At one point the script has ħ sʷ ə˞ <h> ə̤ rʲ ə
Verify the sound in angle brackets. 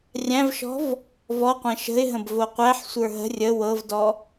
incorrect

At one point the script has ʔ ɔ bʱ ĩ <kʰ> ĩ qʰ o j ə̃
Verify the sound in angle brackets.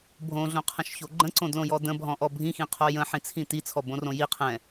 incorrect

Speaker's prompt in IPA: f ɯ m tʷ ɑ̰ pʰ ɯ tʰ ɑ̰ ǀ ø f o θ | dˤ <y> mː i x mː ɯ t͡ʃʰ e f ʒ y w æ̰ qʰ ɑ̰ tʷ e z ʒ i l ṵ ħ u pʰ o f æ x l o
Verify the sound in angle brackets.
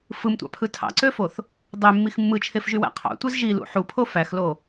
incorrect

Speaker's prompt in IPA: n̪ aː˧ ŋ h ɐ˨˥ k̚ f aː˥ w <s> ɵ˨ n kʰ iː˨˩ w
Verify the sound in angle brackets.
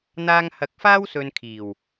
correct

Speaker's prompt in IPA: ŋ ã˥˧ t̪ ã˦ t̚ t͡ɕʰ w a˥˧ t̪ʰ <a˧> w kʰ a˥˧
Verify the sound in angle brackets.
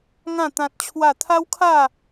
incorrect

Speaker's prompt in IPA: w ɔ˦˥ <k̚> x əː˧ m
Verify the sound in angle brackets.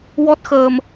incorrect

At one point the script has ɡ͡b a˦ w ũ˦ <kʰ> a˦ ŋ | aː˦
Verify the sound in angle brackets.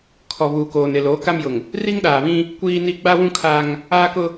correct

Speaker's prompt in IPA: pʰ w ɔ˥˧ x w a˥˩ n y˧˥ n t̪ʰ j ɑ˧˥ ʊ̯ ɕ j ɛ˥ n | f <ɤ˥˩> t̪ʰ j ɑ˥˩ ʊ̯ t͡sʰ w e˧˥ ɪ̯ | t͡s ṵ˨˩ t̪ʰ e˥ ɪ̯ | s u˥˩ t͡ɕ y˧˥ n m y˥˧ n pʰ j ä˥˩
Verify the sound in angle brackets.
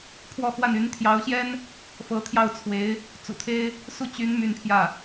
incorrect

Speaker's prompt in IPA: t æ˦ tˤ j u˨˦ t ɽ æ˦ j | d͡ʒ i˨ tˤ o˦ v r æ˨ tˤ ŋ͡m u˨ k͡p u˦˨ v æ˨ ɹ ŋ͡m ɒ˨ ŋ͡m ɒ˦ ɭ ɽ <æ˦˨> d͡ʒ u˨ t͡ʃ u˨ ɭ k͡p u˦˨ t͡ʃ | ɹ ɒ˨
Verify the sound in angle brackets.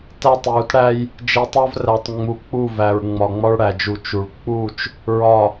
incorrect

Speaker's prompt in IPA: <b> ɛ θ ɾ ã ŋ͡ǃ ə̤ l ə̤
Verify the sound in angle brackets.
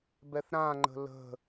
correct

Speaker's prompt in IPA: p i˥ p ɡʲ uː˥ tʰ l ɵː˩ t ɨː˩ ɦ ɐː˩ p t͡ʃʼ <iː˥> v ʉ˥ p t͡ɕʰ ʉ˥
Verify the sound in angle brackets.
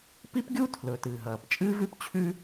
incorrect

